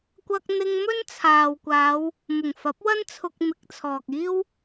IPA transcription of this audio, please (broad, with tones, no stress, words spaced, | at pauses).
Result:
kʷɐ˧k̚n̪ɪ˧ŋ mɵ˥nt͡sʰaː˨wkʷaː˨˧w | mʊ˨˩ŋfɐ˨˥p̚wɐ˥n t͡sʰʊ˧k̚mɪ˨˥k̚t͡sʰɔː˨k̚iː˥w